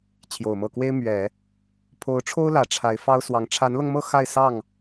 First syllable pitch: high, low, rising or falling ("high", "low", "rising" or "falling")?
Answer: low